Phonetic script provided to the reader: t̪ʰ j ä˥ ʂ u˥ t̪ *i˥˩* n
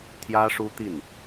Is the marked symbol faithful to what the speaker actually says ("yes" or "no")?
yes